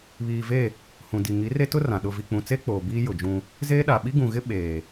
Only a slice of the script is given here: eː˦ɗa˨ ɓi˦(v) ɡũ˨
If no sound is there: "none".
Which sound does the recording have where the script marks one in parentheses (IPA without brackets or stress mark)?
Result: none